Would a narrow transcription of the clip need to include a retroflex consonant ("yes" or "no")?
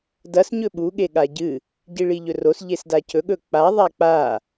yes